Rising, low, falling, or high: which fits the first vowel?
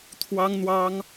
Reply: high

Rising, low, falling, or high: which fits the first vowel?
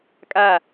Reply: falling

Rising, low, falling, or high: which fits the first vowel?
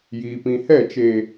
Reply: low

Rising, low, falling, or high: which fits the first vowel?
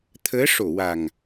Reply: rising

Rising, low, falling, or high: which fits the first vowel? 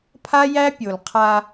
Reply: high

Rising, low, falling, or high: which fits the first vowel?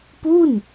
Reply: falling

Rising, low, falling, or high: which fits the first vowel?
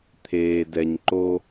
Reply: low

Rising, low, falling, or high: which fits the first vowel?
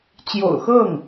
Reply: low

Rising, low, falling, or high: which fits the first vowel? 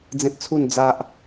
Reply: high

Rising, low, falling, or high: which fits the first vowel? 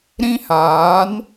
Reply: high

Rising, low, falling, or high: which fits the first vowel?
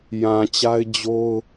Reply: low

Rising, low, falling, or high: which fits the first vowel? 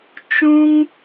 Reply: high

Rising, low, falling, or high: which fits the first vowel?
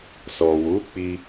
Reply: low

